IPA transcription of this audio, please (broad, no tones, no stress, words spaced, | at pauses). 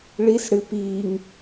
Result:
ɭis ɽɨ piːŋ